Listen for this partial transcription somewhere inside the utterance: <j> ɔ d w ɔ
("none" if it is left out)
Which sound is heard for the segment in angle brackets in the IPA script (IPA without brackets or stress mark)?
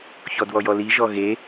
ç